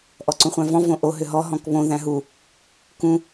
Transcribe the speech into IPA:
ʔ ɔ ǀ ũ χʷ æ̃ v ɔ̃ v õ ʔ o ɦ ʏ ɦ ɔ ɦ ɔ̃ k β õ ð æ̃ ɦ u | k ũ

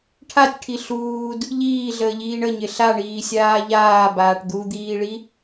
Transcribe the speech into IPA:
ʈʰ a tʲ ʈʰ i ɬ uː d | ʎ iː ɮ əː ʎ iː ɳ ə ɲ ɪ ɬ a ɳ iː sʲ aː ʎ aː b aː ʈ d̪ u d̪ iː ɭ i

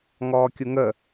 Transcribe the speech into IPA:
ŋ ɔː kʲ u ŋ ə

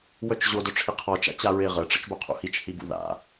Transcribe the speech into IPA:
w œ t͡ʃ ʑ o d œ ʈ͡ʂʰ i qʰ ɔ t͡ʃ a̰ t͡ɕ a ɹ e ʁ ə ʈ͡ʂ ə̰ t͡ʃ b o qʰ ṵ h i t͡ʃ h i b ṵ ð a̰

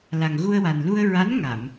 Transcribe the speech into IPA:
l a˨˩ ŋ ɣ u˧ ə̯ w a˨˩ n l u˧ ə̯ ɹ a˧˥ n ŋ a˨˩˨ m

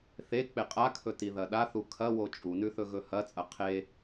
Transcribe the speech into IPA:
θ e k͡p e qʼ a kʰ ɵ t i ð ɐ ɗ a θ u kʰ ɐ w o t͡ʃʼ u n ʉ θ ɵ ɣ ɵ h ɐ t͡sʼ ɐ qʰ e

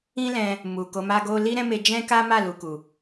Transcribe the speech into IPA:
ĩ˦ l ɛ̃˧ | m u˨ k o˨˦ m a˦ ɡ o˦ l i˦ ɾ ɛ̃˦ m e˧ d͡ʒ ɛ̃˦ k a˦ m a˦˨ l u˨ k u˨

